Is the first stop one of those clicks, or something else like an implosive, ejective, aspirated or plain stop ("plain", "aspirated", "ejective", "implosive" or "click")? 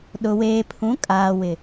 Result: implosive